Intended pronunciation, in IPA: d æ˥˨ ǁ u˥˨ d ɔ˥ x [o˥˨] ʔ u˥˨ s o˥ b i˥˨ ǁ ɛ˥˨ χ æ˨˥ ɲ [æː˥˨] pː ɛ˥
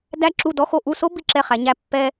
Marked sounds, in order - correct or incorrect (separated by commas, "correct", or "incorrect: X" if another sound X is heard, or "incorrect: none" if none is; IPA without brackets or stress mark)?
correct, incorrect: æ˥˨